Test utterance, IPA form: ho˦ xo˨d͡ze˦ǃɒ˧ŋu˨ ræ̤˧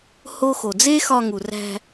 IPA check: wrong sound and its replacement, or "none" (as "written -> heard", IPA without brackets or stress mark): ǃ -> x